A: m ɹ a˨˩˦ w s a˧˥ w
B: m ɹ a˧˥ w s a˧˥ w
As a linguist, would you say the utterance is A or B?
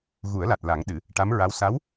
B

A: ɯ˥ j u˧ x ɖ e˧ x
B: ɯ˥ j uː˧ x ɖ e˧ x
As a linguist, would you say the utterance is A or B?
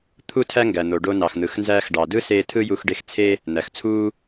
A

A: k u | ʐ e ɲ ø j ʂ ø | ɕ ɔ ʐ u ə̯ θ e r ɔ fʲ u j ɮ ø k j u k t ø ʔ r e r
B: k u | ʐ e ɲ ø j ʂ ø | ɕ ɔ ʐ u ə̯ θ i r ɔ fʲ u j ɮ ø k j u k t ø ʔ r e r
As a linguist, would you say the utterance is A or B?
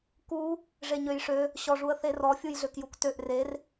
A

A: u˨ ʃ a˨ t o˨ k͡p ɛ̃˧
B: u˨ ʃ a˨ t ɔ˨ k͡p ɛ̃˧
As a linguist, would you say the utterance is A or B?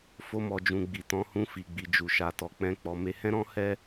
B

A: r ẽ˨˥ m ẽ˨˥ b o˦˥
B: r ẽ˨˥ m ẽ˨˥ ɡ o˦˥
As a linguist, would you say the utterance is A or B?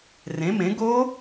B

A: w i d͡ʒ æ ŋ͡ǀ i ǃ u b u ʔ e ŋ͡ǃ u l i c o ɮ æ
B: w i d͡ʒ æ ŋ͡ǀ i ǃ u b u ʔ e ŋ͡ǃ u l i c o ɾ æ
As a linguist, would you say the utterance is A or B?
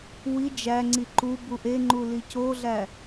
A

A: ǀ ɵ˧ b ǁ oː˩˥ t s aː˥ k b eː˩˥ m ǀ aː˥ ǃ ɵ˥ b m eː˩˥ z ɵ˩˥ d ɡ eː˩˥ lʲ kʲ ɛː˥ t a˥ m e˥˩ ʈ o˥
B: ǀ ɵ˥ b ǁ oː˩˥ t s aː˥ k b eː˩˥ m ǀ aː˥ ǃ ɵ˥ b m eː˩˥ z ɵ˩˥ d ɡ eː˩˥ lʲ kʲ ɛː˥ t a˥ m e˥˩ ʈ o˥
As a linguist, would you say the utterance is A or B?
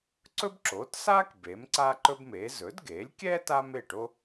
B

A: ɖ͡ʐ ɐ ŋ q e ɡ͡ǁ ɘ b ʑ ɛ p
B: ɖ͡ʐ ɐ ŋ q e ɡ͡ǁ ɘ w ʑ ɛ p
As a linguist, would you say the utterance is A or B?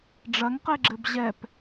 A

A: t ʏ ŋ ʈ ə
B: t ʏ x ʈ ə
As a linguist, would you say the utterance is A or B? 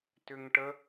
A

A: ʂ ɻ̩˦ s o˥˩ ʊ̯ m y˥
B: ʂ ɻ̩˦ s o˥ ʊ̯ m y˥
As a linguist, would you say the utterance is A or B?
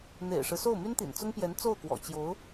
A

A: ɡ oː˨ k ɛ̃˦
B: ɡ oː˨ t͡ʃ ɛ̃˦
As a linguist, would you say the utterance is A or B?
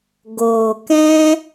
A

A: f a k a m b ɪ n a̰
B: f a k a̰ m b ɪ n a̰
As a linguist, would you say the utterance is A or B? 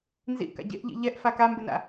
A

